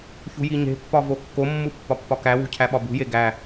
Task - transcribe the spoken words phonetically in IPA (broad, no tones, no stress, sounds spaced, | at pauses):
ç ṳ j i ɲ e̤ pː ɒ v o kː o mː u pː ɒ pː ɒ k æ w ṳ cʰ æ ɓ ɒ b ṳ j e ɡ æ